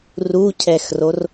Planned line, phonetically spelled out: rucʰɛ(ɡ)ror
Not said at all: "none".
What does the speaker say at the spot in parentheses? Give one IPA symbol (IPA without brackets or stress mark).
x